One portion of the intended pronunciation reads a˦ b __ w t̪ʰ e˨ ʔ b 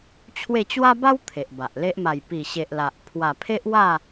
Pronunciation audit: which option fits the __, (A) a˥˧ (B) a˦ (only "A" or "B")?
B